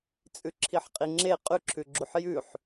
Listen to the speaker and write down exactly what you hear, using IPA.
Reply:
t͡sʼʉǁʰiħqʼiŋ͡ǁe qʼʉǁʰʉɡ͡ǁuħ jʉħ

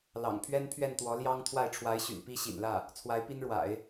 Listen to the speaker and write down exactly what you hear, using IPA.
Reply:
lɑ̰˨˩ŋpʰɥɛ˥n pʰɥɛ˥˩nt̪wɔ˧˥ ljɑ˥ŋ t̪ʰwa˥˩ɪ̯ʈ͡ʂʰwa˧˥ɪ̯ɕy̰˨˩n pi˥ɕḭ˨˩nlä˥˩ | t͡sʰwa˧˥ɪ̯pi˥nɻwa̰˨˩˦ɪ̯

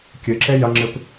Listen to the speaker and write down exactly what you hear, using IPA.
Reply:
kʲɨǁe jɐŋ͡ǁɨp

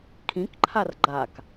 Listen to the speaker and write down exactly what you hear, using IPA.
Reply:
kʰĩkǃʰar ɡ͡ǃak

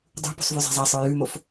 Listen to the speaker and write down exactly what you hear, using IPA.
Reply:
dˤṳ pṳsˤvʉzˤa̤zˤa sˤə˞jʉmof

